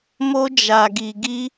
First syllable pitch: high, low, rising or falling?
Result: high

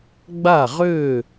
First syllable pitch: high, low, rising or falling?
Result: falling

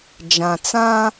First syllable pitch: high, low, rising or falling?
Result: low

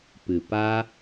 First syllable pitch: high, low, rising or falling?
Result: low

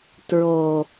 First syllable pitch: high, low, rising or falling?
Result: low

